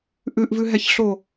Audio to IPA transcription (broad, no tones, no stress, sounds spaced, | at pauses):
ʔ ʉ ʔ v ʉ ɦ ɛ ç ɬ o